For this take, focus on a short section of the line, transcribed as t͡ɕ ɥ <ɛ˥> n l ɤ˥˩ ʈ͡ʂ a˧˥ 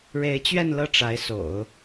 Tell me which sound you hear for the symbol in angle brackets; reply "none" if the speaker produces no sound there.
ɛ˥˧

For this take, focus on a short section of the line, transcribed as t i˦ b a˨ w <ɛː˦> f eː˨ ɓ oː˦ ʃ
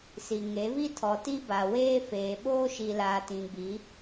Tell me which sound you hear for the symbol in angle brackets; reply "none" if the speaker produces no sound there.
eː˦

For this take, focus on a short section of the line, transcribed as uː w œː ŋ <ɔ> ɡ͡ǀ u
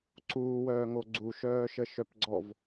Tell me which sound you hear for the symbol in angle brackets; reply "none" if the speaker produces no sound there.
o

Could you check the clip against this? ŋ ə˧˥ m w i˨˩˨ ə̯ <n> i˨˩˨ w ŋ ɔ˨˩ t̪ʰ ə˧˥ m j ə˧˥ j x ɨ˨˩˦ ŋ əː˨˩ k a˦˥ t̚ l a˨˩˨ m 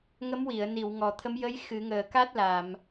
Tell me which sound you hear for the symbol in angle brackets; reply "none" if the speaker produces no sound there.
n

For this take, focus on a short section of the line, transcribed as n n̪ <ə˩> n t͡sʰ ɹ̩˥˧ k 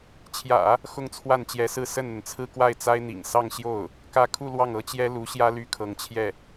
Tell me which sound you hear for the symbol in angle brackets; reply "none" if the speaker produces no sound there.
ə˩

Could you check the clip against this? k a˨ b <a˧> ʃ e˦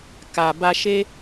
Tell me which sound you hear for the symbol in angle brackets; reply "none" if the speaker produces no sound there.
a˧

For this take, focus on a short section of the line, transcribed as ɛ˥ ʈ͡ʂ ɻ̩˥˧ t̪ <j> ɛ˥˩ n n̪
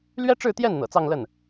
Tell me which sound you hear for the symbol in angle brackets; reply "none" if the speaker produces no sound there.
j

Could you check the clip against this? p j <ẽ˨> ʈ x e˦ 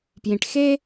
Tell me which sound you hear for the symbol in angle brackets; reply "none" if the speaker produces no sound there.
ĩ˨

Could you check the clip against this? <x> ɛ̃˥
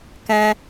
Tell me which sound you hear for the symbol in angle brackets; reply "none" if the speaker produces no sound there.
k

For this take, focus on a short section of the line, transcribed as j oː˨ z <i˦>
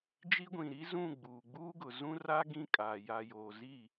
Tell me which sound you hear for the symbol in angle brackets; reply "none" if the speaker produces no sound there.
i˦˨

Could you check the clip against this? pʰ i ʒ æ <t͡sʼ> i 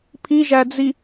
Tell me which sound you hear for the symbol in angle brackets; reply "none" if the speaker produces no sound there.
d͡z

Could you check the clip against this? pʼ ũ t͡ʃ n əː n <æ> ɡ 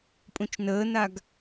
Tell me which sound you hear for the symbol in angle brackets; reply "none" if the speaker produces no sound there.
a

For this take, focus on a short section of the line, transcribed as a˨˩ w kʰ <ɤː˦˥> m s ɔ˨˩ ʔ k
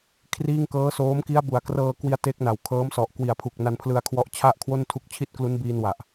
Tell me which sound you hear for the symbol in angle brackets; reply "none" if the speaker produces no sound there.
ɤː˦˥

